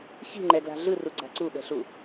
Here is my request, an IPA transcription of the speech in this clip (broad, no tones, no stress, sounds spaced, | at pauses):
ç i̤ ŋ͡ǃ ɛ ɡ l a̤ ɮ ɯ r u ɡ͡ǀ a̤ ǀ u ɓ ɛ̤ ɬ u